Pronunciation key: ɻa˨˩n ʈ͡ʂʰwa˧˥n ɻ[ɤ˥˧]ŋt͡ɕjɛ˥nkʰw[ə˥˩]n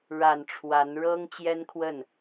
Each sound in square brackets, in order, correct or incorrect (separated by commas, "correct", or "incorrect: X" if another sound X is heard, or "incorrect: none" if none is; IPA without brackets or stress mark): incorrect: ɤ˥, correct